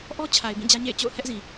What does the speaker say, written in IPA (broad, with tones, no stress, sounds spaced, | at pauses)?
ʔ ɔ˦ t͡ɕʰ a˨ ɪ̯ b ĩ˦˨ d͡ʑ ä˦ ɲ ḛ˦˨ ɪ̯ t͡ɕ o̰˦˨ ʊ̯ h ɛ˦ ʔ z ĩ˨